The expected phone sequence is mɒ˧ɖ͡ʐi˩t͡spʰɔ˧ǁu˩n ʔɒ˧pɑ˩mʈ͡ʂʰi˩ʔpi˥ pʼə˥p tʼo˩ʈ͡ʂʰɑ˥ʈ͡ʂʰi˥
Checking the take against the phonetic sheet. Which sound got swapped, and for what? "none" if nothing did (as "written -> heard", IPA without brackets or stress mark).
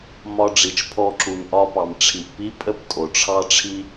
t͡s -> t͡ʃ